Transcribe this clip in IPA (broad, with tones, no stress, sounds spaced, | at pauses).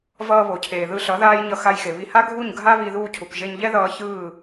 v ʌː˧ β o˨ cʰ eː˨ ð ɯ˧ ɬ ʌ˨˦ ð aː˦ j ɲ ʌ˧ x a˧ j x e˨ β i˧ h a˦ ɡʱ u˦˨ ɲ ɡʱ a˦ β i˧ ð uː˧ cʰ u˨ k ʒ e˧ ɲ ʎ ɛ˦ ð ʌː˧ ç ɯː˦˨